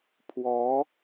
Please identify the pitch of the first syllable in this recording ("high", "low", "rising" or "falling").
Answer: rising